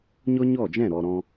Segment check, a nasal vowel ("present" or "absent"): present